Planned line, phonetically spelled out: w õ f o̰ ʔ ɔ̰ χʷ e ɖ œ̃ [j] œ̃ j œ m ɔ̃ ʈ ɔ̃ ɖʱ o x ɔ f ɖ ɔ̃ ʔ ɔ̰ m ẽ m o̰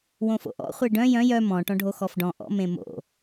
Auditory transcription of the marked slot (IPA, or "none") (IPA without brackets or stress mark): j